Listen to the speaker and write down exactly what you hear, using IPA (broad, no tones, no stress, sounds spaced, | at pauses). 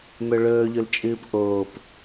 m ɵ ɭ ɵː ʎ ɵ l t͡ʃʼ ɨː p ʔ oː p